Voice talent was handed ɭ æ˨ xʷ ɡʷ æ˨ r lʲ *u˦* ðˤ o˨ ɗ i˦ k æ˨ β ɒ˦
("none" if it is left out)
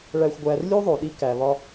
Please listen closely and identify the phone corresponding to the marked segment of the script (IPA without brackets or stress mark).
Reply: u˦